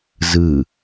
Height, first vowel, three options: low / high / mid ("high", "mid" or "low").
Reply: high